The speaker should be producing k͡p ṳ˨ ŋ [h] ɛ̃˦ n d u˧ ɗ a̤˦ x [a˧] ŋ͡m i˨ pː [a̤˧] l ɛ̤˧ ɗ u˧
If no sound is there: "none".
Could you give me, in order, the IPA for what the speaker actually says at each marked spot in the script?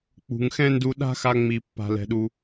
x, a˧, a̤˧

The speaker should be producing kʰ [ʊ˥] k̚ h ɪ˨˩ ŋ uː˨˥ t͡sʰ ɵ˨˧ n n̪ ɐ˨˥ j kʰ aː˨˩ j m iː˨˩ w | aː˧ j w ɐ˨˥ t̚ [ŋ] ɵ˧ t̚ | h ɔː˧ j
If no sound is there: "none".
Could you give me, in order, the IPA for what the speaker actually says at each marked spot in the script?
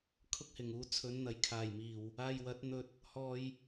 ʊ˥, n̪

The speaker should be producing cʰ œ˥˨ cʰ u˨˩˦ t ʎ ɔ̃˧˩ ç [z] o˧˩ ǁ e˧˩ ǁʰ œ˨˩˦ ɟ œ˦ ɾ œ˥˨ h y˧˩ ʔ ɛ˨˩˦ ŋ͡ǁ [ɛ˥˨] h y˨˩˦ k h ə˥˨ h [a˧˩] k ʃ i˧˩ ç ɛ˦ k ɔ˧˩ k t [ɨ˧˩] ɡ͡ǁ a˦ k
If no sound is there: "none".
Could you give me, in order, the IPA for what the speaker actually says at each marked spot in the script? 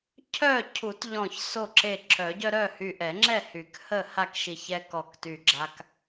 s, ɛ˥˨, a˥˨, y˧˩

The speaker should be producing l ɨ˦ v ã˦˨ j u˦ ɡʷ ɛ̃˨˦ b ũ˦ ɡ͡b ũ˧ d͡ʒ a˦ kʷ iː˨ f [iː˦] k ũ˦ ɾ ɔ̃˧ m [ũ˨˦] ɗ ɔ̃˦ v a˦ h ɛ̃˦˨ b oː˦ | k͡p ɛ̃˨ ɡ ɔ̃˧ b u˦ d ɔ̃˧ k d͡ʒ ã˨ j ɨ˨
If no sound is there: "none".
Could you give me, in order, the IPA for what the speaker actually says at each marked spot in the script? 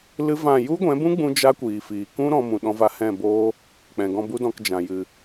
iː˨, ũ˧

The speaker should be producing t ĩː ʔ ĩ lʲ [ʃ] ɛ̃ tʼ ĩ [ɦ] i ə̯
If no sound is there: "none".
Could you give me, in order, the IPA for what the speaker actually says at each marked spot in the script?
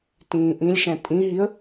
ʃ, ɦ

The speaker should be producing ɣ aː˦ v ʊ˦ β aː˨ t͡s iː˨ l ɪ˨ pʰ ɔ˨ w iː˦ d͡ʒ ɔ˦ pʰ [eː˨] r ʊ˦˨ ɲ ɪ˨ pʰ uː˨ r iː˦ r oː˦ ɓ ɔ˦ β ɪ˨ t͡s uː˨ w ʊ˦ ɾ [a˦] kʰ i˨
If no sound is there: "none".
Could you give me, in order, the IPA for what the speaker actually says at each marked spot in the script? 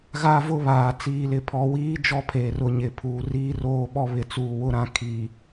eː˨, ã˦

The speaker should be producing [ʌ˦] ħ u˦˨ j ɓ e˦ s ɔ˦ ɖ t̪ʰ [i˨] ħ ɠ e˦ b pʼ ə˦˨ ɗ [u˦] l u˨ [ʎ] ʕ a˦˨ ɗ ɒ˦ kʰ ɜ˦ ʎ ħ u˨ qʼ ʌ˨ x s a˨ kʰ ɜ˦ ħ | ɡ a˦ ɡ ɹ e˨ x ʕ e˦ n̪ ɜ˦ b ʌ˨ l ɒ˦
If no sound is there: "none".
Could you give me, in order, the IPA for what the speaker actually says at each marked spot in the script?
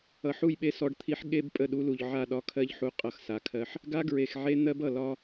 ʌ˨, i˦, u˦, ʎ

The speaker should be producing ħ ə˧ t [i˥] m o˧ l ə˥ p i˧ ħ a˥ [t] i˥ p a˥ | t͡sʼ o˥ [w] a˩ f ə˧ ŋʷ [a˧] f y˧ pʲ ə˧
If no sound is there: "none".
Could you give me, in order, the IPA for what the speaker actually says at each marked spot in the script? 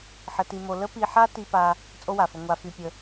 i˧, t, w, a˧

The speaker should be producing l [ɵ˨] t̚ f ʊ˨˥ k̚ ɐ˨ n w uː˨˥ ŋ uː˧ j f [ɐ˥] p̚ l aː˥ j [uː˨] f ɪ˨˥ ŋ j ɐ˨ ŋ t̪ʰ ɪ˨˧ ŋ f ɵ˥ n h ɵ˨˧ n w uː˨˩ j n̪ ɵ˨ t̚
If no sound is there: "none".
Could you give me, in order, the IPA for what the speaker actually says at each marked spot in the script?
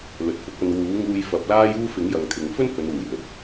ɵ˨, ɐ˨˥, uː˥

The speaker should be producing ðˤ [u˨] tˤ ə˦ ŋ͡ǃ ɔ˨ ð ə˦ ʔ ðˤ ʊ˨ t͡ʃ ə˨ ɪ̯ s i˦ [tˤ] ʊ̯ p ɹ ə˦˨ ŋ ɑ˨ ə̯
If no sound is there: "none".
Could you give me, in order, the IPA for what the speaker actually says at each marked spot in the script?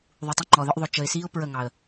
u˨, none

